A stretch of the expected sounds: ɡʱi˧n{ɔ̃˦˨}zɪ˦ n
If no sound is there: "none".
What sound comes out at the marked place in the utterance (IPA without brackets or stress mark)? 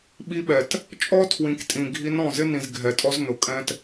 ɔ̃˦˨